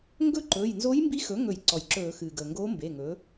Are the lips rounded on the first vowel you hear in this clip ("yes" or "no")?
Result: yes